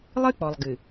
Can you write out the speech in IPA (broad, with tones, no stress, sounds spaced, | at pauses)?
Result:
lˠ ɨ˦ k͡p ɔ˨ lˠ ɡ ɨ˨